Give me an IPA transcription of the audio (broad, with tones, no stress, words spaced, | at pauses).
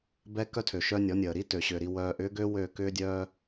bɛ˦kœ˦tʰø˨ ʃœ˦nʲɔ˨˦ nʲəː˨ɾi˦tø˨ɕʏː˨ ɾi˦wœː˦ʔ ʏː˦ɡø˦ wø˦˨ kʏː˦dʲœː˦